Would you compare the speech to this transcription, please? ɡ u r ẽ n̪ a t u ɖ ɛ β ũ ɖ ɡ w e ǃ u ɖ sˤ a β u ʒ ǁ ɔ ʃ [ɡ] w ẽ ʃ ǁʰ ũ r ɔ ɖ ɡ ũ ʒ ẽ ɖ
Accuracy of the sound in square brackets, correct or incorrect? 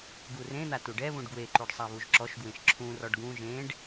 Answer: correct